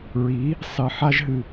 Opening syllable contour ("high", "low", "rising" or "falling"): rising